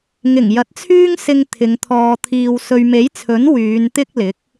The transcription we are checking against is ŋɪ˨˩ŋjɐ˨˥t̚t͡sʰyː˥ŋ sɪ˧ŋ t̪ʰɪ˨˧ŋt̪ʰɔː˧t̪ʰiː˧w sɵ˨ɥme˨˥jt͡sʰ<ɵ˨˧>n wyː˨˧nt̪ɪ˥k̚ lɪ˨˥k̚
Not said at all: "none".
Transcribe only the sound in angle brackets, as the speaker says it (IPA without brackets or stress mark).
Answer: ɵ˨˥